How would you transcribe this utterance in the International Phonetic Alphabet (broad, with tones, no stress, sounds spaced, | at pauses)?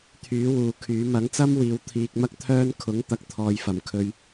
t̪ʰ yː˨˥ w uː˨ kʰ yː˨˥ m ɐ˨˥ ŋ t͡s ɐ˥ m w iː˨˧ w t̪ʰ iː˧ k̚ m ɐ˥ k̚ t̪ʰ œː˥ n kʰ ʊ˨˥ ŋ t̪ ɐ˨ k̚ t̪ʰ ɔː˨ j f ɐ˨˩ m kʰ ɵ˧ ɥ